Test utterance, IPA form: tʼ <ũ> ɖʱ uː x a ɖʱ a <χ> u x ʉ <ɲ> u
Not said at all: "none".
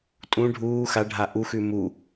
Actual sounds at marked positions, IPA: ũ, ʔ, m

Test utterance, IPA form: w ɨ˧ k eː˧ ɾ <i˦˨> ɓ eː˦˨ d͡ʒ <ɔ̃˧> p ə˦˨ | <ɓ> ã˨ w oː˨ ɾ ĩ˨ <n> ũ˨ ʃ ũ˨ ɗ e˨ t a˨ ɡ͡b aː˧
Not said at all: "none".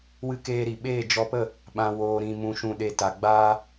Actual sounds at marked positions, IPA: i˨, ɔ˧, ɓ, m

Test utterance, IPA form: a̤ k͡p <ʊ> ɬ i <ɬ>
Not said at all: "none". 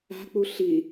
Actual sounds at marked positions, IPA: u, none

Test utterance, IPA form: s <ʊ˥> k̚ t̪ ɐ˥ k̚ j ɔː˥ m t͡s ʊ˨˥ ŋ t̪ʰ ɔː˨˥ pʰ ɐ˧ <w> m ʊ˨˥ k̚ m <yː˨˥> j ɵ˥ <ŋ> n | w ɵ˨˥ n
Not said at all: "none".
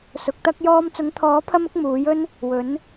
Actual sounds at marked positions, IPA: ʊ˨˥, none, uː˨˥, none

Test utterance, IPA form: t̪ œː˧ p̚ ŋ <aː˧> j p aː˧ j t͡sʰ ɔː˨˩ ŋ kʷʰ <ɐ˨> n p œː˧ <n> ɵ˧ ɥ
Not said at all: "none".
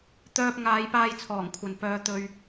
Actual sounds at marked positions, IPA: aː˨˧, ɐ˨, t̪

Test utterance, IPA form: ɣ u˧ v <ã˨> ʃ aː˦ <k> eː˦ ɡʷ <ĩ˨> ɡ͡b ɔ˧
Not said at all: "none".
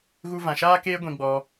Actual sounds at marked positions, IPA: ã˨, k, ĩ˧

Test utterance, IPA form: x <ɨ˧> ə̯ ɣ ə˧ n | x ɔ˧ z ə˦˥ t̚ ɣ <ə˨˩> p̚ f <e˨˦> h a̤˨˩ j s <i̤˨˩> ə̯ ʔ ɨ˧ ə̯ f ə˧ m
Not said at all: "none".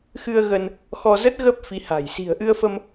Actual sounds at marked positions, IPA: ɨ˧, ə˦˥, i˨˦, i̤˨˩

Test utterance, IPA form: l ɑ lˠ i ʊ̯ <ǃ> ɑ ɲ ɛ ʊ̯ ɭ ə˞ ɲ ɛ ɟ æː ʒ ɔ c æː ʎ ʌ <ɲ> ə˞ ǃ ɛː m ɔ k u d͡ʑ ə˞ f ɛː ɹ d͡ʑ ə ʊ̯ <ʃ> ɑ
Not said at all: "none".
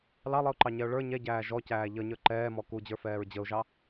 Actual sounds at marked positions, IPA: ǃ, ɲ, ʒ

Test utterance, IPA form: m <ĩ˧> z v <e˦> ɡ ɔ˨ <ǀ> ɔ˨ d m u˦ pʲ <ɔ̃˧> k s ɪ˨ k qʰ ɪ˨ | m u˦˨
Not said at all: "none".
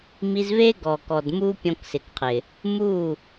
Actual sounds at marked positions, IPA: i˧, e˦, k, ɔ̃˧

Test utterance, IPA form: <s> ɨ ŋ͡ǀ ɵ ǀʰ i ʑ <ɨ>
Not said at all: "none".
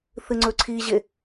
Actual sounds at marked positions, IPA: θ, e

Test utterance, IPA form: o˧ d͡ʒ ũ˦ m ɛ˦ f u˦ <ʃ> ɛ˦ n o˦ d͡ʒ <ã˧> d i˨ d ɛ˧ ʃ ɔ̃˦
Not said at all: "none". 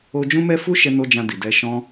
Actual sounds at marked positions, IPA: ʃ, ã˧

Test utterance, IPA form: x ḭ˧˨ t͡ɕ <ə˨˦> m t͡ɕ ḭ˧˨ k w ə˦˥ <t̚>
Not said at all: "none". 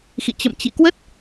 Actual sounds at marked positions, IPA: ə̰˧˨, t̚

